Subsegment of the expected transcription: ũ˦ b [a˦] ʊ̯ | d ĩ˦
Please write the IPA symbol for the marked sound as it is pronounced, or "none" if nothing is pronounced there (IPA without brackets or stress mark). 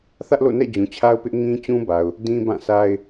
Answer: a˨